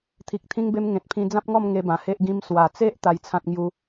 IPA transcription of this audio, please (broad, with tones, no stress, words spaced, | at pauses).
t̪ʰi˨k̚t̪ʰĩ˧ŋbe˧m ŋẽ˨t̚pʰĩ˧ d͡zã˦p̚ŋɔ˥˧m ŋe˧bã˨˩he˦ʔɡĩ˦m swa˨˩t͡se˦ʔ t̪a˧jt͡sʰã˦t̚ŋju˦